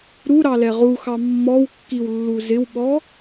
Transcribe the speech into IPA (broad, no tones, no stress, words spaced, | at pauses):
ɾuɾɑlɛ ʁuxɑ mːɔwkːiwlːu zɪwɓɔ